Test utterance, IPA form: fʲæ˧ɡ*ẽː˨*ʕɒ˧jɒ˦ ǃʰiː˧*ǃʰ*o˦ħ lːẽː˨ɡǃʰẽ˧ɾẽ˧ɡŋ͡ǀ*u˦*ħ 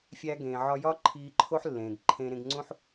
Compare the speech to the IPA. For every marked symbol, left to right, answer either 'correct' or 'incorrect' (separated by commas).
correct, correct, incorrect